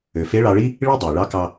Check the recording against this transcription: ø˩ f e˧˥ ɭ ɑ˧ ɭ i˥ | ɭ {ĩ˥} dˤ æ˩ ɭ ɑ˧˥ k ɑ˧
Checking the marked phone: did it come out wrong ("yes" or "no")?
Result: yes